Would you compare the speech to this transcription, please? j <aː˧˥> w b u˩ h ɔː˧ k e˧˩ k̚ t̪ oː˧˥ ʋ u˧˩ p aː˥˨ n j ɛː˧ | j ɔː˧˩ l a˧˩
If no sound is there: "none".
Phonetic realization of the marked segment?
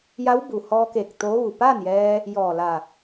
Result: a˧˥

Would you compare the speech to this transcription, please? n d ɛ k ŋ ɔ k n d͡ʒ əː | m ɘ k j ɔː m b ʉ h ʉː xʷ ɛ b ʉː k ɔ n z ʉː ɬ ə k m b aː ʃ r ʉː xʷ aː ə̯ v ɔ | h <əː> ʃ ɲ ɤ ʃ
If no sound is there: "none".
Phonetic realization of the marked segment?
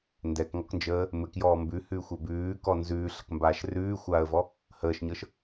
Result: əː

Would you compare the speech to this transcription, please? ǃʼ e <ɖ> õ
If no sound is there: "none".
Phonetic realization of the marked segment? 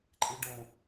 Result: ɖ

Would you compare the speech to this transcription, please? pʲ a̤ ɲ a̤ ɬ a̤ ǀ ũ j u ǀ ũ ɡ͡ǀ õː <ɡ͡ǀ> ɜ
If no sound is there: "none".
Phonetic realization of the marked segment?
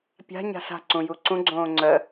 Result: ŋ͡ǀ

